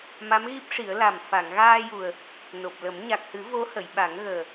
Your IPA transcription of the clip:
m a˧˥ m ɣ i˦˥ p̚ ʂ i˨˩˦ ə̯ l a˨˩ m f a˨˩˨ ŋ ɣ aː˧ j u˨˩ ə̯ | n o˨˩ p̚ l ə˨˩˦ m ɲ a˨˩ k̚ h ɨ˨˩˦ v o˧˥ h ə˨˩˨ j ɓ a˨˩˦ ŋ ɣ əː˨˩

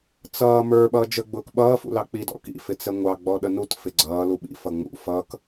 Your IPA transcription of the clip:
t͡s ʌː m ə˞ ɓ ʌː d͡ʒ ə ɡ͡b ʊː k ɓ ʌː f ṵ l ɑ k͡p i d ɔ̰ k ḭ f ɪ t͡s ɛ ŋʷ ɑ ɡ͡b ɔ ɗ ə n u t f ɪ ɡ͡ǀ ʌː l u ɓ ḭ f ʌ ŋ͡m ṵ f ʌ k

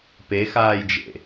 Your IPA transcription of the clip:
p e x aː j d͡ʒ ḛ

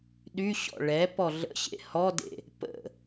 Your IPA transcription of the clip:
ɗ y ɕ ɔ̰ ɭ ɛ p ɔ ɮ ə̰ ɕ ḛ h ɔ d ḛ | p ə̰

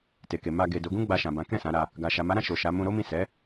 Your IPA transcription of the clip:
t e˨ k e˨ m a˧ ɡ e˨ d o˨˦ ɡ ũ˦ ɡ͡b a˧ ʃ ã˨ b ã˨˦ k ɛ̃˦˨ s ã˨˦ ɾ a˧ | ɡ a˨ ʃ a˨ m a˨˦ ɾ ã˧ ʃ o˨ ʃ a˨˦ m ũ˧ ɾ o˦ m ĩ˦˨ s ɛ˨˦

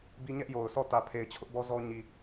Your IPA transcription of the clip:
b i˦ ɲ ɛ˦ ʔ j o˨ ʊ̯ s ɔ˦˨ t ä˨ pʰ e˨ ɪ̯ t͡ɕʰ ʊ˦ ʔ b ɔ˦ z ɔ˦ ɲ i˨

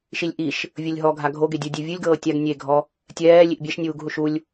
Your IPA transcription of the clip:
ʃ i lʲ ʔ i ʃ | vʲ ɤ lʲ ɦ ɔ ɡʱ a ɡʱ o ɡ e dʲ u dʲ e vʲ ɯ lʲ ɡ ɤː tʲ a ɡ nʲ e ɡʱ ɔ | tʲ ɛː lʲ i ʔ bʲ ɛ ʃ nʲ uː ɡ ɦ u ʃ u lʲ

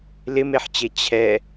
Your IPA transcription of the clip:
l ɪ m e ħ t͡ɕ e t͡ɕʰ ɛ

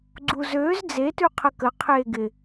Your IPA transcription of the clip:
ɡ͡ǀ u z øː z d͡z e t ʉ qʰ ə k ə qʰ eː ɡ ɪ

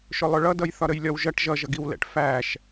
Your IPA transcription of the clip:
ʃ ʊ lˠ ʊ ɭ ʌ d ʌ j θ ɒ ɾ ə j lʲ ɒ w ʒ ʌ ʈ ʒ ʌ ʒ ʌ ɡ i w l ɛ̰ ʈ f æ ʃ

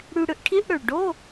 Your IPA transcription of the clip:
ɽ y˧ ɽ ɯ˧ ʔ ʈʰ i˧˥˧ ʔ ɽ ø˨˩ ɭ ɖ o˧˥˧

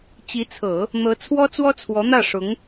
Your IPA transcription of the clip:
t͡ɕ i˧˥ t͡sʰ ɤ˨˩˦ | n̪ ɤ˧˥ t͡sʰ w ɔ˥ t͡s w ɔ˥ t͡sʰ w ɔ˧˥ n̪ ä˥˩ ʂ ʊ˧˥ ŋ

